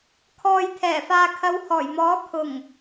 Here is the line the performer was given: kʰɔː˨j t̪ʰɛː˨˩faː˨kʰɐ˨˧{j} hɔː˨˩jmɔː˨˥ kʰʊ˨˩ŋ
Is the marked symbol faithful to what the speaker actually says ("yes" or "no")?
no